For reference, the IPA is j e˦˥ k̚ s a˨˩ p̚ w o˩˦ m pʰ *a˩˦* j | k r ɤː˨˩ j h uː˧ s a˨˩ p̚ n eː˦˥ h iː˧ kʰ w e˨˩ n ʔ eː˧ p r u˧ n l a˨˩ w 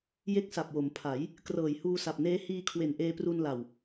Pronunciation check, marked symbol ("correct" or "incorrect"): correct